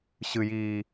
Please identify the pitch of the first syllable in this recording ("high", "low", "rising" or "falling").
low